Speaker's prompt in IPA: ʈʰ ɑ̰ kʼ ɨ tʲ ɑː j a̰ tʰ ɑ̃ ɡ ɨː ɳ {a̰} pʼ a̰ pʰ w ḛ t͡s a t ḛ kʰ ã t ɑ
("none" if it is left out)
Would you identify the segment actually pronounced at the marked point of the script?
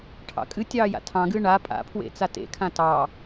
a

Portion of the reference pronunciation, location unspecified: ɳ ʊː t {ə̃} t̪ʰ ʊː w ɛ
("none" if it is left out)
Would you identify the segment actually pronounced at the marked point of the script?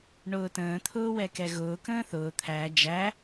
ə̃ː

